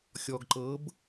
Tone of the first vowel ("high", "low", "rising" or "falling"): low